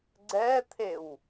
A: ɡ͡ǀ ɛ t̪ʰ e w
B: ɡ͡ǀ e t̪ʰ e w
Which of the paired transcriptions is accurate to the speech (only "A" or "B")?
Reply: A